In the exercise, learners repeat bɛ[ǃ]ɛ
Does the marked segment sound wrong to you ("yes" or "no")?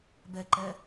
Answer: no